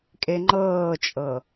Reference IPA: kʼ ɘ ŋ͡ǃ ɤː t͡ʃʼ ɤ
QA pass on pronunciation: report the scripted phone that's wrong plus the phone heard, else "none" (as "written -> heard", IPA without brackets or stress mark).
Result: ɘ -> e